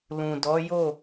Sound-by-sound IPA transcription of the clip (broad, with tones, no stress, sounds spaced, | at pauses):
l ũ˨ d ɔ˨˦ j o˦˨